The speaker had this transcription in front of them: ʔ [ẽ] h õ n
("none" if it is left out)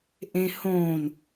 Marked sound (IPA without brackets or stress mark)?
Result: ẽ